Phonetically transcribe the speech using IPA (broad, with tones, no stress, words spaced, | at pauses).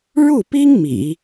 ɻu˥˩pi˥ŋ mḭ˨˩˦